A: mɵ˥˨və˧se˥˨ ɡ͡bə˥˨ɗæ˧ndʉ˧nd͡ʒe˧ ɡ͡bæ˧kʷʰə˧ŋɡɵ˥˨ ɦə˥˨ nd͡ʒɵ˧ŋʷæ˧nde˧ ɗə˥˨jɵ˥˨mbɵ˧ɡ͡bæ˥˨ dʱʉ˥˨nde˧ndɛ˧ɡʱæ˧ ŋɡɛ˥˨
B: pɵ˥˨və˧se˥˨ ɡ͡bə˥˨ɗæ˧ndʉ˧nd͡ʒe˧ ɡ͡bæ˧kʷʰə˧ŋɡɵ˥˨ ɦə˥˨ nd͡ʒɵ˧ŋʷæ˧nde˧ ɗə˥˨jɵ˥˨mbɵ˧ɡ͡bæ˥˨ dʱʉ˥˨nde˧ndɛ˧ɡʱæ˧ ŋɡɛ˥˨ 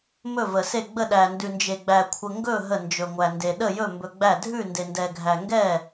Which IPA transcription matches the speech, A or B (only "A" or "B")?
A